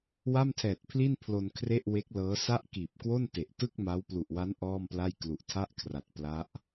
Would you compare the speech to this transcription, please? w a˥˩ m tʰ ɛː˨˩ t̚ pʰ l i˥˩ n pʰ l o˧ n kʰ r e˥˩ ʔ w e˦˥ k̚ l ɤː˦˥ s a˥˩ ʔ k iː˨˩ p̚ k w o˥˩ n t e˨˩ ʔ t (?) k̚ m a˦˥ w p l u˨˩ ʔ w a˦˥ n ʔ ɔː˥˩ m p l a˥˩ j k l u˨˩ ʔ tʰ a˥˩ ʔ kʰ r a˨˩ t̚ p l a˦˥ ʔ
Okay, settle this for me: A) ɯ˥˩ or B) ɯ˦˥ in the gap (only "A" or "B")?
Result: A